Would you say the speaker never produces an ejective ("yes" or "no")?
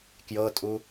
no